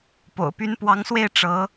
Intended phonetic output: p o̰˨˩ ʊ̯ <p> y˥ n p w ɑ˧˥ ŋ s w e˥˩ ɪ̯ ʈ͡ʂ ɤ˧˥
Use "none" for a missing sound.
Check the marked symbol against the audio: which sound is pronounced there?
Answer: p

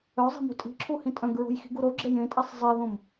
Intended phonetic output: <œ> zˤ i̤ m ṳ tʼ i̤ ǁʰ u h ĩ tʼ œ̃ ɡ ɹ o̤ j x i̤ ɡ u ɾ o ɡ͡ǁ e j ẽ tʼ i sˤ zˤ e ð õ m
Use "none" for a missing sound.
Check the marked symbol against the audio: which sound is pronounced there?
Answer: œ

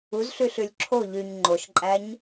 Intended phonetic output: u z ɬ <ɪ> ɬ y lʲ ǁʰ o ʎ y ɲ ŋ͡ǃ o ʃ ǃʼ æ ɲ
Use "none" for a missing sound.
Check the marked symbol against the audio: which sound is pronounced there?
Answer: y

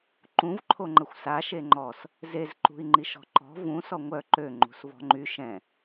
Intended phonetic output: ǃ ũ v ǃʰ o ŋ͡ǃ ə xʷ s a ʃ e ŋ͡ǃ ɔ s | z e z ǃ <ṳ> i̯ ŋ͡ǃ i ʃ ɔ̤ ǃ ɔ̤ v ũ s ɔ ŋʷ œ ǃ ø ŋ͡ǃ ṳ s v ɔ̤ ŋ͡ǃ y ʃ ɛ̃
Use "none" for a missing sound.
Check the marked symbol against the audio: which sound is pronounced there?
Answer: ṳ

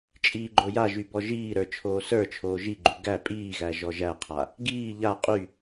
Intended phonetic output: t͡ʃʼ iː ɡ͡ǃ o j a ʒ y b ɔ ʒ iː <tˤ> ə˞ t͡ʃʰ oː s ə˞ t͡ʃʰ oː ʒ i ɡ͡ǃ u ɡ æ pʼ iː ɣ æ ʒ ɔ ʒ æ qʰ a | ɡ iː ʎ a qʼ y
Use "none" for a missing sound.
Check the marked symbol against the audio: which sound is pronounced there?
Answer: ɾ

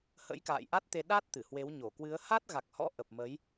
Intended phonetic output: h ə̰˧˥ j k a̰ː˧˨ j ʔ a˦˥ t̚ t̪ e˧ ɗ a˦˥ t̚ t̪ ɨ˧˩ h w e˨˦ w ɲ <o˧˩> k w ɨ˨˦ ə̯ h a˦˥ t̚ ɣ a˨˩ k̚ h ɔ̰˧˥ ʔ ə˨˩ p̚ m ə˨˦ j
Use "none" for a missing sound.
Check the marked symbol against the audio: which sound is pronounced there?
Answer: o˧˩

